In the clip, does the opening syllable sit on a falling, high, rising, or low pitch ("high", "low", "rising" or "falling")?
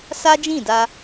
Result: high